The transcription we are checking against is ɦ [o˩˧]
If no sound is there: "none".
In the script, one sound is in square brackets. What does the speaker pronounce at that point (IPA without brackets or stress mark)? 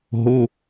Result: o˩˧˩